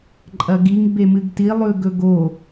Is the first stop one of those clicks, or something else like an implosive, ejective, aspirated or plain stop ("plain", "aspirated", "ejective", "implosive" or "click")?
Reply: click